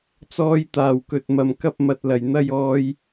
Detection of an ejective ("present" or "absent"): absent